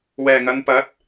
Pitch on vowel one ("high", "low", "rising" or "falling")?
low